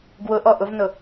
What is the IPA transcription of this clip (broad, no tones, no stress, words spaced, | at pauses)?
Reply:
ɡwʊʔɔ ʔʊvnʊ